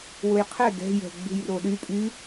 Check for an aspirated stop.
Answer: present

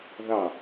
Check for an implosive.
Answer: absent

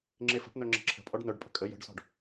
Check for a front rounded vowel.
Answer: present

